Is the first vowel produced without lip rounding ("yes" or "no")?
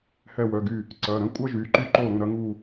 yes